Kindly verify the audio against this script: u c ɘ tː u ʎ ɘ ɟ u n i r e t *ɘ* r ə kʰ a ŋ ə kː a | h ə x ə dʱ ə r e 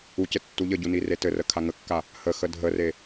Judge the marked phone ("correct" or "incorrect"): correct